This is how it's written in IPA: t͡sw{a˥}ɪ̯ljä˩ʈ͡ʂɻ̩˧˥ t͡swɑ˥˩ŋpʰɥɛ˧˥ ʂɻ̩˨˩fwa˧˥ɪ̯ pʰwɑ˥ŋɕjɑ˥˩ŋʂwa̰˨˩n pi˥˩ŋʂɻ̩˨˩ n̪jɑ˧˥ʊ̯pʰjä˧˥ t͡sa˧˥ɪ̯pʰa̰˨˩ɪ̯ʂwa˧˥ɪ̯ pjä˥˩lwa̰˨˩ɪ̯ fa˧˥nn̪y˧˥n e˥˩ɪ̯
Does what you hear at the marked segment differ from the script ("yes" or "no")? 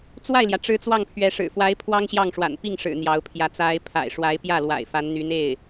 yes